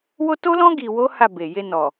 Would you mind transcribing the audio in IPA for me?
w o˦ t o˦ l ɔ̃˦ ɡ i˧ w o˦ h a˦˨ b e˨ j e˧ n ɔ˨

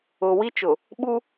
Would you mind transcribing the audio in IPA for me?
ʊ˨ w i˦ t͡ʃ ʊ˨ | ɓ u˦

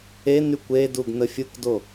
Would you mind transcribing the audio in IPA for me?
e n y kʷ e d u ɡ n ə fʲ u k d o

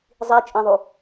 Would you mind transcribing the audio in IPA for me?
zˤ i t͡ʃʼ ẽ ðˤ u

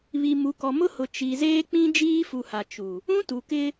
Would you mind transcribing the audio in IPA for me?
β i˨ m u˨ k ɔ˨ m ʊ˦ h ʊ˨ t͡ʃ i˨ z eː˦ k͡p ĩ˦ d͡ʒ iː˦ f u˨ h a˨ t͡ʃ u˨ | ũ˦ t u˨ k ɪ˦

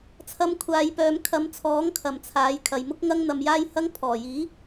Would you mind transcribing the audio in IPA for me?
t͡sʰ ɐ˧ m kʷʰ aː˨˧ j p œː˨˧ m kʰ ɐ˨˧ m t͡sʰ ɔː˨˥ ŋ kʰ ɐ˨˩ m t͡sʰ aː˨˥ j kʰ ɐ˨ j m ʊ˥ k̚ ŋ ɐ˥ ŋ n̪ ɐ˧ m j aː˥ j h ɐ˥ ŋ pʰ ɔː˨˩ j iː˨˥

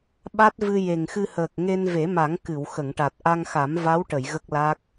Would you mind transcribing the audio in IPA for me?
ɓ a˦˥ t̚ v ɨ˧ j e˨˩ ŋ x ɨ˧ h əː˨˩ k̚ ŋ e˧ n v e˨˩˦ m a˨˩˦ ŋ k ɨ˨˩˨ w x ə˨˩˨ ŋ ʈ a˨˩ t̚ ʔ a˧ ŋ x a˨˩˦ m v a˧˥ w ʈ ə˨˩˨ j ɣ ə˦˥ k̚ l a˦˥ k̚

